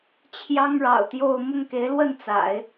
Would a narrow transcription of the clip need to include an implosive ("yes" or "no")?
no